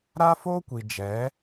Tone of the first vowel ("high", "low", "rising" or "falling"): high